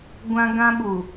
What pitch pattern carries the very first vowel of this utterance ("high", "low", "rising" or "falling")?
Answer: high